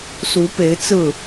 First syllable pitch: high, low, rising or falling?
rising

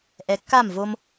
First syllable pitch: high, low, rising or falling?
low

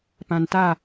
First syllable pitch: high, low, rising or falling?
low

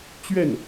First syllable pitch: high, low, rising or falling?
falling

